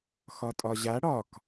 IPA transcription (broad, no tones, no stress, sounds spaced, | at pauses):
x ɒ tʼ ɒ ʑ a ɽ ɒ k